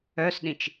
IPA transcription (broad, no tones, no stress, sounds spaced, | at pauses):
œ s ɗ ĩ t͡ʃ